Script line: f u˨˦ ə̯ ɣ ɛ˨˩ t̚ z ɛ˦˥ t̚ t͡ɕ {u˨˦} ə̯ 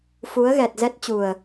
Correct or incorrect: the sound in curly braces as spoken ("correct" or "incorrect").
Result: incorrect